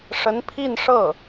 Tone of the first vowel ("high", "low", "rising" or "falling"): rising